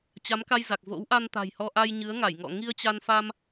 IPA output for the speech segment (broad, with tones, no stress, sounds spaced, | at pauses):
t͡ɕ a˨˦ m k a˧ j z a˨˩ k̚ v o̰˧˥ w ʔ a˧ n t̪ a̤˨˩ j h ɔ˧ ʔ a˧ j ɲ ɨ˨˦ ə̯ ŋ a˧˩ j ŋ ɔ̰˧˨ ŋ i˧ ə̯ t͡ɕ a˧ n f a˧ m